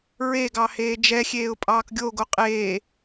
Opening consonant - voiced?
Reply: yes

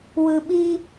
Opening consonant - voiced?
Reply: yes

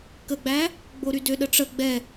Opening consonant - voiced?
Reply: no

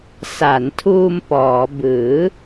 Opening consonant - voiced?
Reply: no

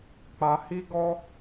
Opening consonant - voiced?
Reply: no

